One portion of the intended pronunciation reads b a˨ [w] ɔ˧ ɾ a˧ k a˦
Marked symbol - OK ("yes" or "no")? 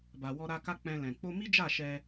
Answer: yes